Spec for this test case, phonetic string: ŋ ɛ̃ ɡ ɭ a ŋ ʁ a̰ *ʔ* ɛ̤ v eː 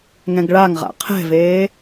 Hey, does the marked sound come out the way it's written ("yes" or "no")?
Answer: no